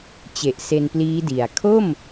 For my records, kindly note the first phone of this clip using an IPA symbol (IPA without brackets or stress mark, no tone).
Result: t͡ɕ